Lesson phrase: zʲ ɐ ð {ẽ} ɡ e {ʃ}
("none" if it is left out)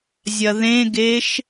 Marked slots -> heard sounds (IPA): ẽ, ʃ

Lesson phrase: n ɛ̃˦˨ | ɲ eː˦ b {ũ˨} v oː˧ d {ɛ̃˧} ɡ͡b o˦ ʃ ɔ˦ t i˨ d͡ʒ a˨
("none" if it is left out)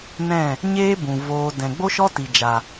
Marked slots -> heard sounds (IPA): ũ˨, ɛ̃˨

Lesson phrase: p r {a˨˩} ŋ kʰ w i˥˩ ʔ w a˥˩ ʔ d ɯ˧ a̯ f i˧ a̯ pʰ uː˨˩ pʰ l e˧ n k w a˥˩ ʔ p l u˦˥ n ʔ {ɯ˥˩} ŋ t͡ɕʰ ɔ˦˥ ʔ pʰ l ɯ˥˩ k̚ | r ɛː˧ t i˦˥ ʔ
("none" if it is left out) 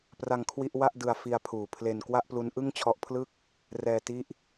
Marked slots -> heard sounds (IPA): a˧, ɯ˥˩

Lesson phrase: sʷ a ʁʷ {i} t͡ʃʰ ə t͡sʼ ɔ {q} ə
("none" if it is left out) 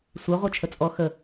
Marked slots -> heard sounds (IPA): e, x

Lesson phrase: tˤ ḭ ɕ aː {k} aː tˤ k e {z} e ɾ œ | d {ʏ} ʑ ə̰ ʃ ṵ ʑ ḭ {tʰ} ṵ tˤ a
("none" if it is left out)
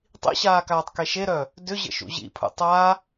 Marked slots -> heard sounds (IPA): k, ʃ, ʏ, pʰ

